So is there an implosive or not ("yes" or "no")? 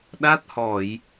yes